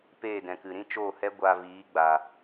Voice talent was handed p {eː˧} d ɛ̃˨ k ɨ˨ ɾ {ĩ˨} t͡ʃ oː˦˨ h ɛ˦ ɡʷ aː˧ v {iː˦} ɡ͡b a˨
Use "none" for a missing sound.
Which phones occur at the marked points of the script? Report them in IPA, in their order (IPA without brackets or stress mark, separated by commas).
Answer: eː˦˨, ĩ˦, iː˨˦